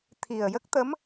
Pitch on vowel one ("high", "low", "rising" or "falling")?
low